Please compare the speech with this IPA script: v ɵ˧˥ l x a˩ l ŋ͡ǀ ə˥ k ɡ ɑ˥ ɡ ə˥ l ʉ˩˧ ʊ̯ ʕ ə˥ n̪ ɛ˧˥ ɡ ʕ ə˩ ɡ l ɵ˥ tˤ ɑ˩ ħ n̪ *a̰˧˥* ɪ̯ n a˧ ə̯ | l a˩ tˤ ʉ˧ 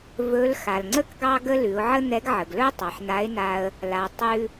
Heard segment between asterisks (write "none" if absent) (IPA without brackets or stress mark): a˧˥